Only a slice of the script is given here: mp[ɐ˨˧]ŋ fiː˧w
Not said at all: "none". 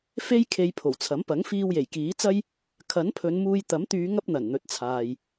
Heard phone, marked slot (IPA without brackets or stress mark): ɐ˨˥